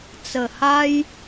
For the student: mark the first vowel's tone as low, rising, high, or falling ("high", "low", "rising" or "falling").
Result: low